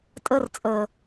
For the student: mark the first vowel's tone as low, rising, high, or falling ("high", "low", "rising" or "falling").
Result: high